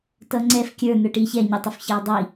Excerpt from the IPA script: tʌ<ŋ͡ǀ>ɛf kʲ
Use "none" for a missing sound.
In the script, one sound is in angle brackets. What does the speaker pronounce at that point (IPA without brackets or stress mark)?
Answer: ŋ͡ǀ